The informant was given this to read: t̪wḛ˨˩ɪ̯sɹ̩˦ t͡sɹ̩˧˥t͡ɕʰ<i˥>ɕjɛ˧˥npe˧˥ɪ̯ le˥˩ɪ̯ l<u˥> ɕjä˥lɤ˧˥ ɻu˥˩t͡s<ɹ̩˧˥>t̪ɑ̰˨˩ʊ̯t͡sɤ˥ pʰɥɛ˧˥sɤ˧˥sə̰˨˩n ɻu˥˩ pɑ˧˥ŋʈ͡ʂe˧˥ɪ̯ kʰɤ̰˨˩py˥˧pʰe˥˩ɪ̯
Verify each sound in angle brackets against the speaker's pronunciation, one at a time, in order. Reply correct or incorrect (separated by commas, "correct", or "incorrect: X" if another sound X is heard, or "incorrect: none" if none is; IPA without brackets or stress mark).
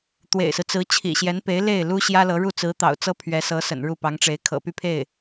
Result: incorrect: ḭ˨˩, correct, correct